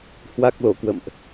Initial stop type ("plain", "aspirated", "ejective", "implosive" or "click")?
plain